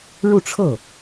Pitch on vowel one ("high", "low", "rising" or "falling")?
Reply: falling